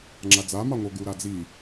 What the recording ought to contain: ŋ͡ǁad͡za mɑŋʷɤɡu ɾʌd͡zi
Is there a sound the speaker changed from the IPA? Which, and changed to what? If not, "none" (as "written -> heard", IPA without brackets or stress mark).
ʌ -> a